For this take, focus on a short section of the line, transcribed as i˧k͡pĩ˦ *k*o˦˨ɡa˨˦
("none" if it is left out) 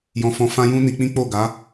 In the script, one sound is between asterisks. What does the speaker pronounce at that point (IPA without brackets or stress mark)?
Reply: k͡p